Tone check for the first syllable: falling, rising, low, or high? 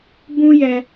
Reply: high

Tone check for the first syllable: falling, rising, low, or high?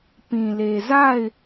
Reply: low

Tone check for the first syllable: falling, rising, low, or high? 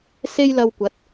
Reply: high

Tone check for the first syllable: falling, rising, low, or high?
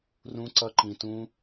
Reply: high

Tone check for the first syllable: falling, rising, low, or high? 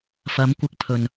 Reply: rising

